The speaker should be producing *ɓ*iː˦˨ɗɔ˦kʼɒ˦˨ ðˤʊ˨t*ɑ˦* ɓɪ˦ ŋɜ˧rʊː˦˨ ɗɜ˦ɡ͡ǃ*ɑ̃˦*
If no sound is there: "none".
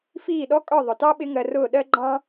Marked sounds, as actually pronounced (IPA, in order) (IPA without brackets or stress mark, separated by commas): f, ɑ˦, ɑ̃˦